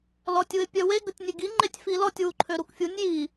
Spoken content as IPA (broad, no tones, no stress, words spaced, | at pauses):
lɔtʲuɪ̯pʲœwe ɡətʲnʲeɡi ŋ͡ǃetʲfilɔtʲ wuǃʰøɾukfʲunʲ ji